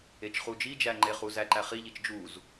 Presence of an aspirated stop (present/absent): absent